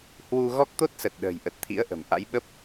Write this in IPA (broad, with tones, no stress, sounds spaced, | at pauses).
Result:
h w u˧ ɣ ɔ˦˥ k̚ t̪ o˦˥ t̚ s ə˨˩ t̚ ɗ ə̤ː˨˩ j ʔ ə˨˩ t̚ t̪ʰ ḭ˧˥ ə̯ ʔ ə̤˨˩ m ʔ a̰˧˥ j ɓ ə˦˥ p̚